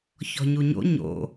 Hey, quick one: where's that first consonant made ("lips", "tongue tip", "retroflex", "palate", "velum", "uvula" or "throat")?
palate